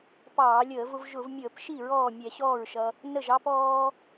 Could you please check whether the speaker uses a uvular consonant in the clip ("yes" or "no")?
no